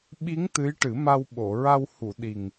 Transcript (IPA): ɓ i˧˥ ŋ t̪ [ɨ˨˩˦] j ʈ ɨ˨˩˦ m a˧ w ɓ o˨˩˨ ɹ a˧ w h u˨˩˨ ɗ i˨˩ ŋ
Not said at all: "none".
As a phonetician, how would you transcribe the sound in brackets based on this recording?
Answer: ɨ˧˥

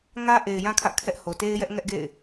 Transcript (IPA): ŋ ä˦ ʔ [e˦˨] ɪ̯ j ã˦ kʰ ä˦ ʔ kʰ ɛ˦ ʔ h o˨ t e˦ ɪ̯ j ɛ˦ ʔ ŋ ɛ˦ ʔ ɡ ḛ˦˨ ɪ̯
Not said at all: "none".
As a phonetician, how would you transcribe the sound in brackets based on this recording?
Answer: e˨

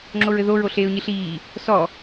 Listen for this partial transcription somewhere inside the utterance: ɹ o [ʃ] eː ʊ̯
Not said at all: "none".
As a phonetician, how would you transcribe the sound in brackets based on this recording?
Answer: ɬ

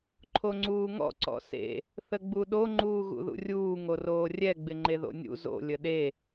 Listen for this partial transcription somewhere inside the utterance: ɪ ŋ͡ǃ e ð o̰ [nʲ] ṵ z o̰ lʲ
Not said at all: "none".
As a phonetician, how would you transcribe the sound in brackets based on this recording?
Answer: nʲ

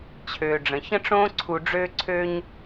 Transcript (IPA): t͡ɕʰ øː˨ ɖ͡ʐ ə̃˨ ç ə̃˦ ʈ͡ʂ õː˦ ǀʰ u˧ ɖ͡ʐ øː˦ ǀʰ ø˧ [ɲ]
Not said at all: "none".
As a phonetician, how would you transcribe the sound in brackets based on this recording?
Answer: ɲ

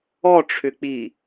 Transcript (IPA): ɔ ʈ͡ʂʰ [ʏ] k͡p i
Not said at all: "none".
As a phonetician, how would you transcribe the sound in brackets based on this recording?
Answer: ʏ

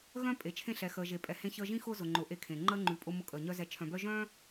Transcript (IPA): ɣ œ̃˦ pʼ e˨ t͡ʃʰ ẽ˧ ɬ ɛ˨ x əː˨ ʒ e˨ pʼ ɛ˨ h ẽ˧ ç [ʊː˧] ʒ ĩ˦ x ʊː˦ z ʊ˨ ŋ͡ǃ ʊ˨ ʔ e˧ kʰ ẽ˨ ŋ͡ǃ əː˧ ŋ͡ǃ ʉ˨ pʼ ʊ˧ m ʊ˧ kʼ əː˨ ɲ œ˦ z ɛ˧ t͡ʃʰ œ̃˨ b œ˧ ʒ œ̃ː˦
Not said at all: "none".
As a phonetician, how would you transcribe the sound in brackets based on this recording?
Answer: əː˧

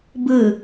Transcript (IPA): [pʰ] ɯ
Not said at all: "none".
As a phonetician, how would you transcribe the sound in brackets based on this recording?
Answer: b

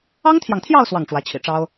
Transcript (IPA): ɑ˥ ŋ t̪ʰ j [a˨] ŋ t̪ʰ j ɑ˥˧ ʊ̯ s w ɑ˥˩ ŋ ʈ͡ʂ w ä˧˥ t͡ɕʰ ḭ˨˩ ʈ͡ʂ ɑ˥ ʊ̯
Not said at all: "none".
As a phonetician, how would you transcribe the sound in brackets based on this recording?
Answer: ɑ˨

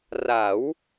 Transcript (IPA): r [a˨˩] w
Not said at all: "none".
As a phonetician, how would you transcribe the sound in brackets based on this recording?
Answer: a˩˦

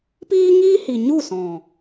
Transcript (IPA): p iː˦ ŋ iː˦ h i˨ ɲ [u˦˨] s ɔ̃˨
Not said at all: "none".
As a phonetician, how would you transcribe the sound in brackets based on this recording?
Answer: u˦˨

